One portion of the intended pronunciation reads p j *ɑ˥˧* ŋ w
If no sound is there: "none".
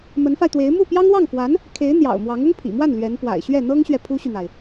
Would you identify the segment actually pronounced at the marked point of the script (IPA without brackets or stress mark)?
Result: ɑ˥